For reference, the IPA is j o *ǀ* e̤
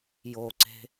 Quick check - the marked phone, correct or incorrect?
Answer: correct